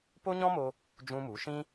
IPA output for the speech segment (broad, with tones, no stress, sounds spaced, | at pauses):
p o˦ ɲ ɔ̃˦ m o˧ | d͡ʒ ũ˦ m u˨˦ ʃ ĩ˦